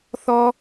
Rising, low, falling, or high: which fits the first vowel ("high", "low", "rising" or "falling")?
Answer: high